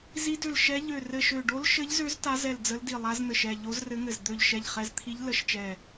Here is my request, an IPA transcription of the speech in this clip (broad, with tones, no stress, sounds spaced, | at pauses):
z i˧˥ d ø˧˩ l ʃ ɛ˧˥ ʎ ø˧˩ r ɘ˧˩ ʃ ø˧˩ ɖ o˧˥ l ʃ ɘ˧˥ ʎ z ø˧˥ z t a˧˥ z ɛ˧˩ l d͡z ə˧˥ l d i˧˩ lˠ a˧˥ z n̪ ɘ˧˩ ʃ ɛ˧˩ ʎ o˧˥ z r ɘ˧˥ ŋ ɘ˧˩ z d̪ ø˧˩ ʎ ʃ ɛ˧˩ ʎ χ ɛ˧˥ z t̪ʰ i˧˥ ʎ l ə˧˥ ʃ t͡ʃ ɛ˧˩